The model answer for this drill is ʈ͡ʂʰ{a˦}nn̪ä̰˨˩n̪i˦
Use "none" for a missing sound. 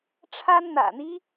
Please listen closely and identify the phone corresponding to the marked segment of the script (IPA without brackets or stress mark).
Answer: a˦